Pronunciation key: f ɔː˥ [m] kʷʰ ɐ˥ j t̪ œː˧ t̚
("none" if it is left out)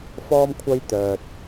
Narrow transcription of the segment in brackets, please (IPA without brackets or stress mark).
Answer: m